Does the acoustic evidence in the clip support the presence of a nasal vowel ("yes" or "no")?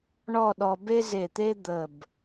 no